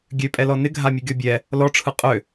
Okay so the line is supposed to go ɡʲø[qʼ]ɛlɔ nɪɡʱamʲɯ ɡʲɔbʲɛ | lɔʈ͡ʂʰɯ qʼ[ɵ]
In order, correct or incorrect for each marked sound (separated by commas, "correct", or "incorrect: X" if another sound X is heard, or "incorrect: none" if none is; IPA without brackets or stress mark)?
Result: incorrect: pʼ, incorrect: ø